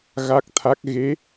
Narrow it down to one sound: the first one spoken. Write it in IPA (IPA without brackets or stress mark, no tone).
ɣ